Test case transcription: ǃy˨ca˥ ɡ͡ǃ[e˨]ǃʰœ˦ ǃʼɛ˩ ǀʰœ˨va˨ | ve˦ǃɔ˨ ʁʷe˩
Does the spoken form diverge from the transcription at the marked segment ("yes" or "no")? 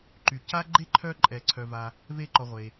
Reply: yes